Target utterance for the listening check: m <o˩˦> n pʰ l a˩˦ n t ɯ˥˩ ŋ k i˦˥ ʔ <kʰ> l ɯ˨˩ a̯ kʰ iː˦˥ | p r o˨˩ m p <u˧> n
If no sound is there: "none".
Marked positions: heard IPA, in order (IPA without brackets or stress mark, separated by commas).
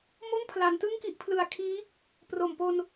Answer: o˥˩, pʰ, o˧